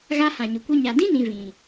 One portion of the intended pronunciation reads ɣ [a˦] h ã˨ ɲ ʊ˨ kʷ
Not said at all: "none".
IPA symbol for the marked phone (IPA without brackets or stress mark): a˦